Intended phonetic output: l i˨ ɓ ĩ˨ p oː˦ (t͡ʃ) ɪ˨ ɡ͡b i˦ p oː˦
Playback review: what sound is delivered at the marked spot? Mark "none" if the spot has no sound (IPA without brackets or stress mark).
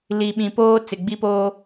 t͡s